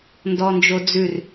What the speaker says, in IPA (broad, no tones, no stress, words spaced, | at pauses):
ndɔnd͡ʒod͡zʉr